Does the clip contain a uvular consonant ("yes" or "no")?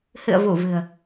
no